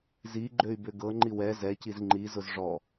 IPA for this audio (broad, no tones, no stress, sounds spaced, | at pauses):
z i ɡ͡ǃ ø y̯ b ʏ ɡ ɤ ŋ͡ǃ i w ɛ z ɛ c i z ŋ͡ǃ i z ʊ z ʐ ɔ